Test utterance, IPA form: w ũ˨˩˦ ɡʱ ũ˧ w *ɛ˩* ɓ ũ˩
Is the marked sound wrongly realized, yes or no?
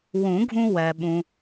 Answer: no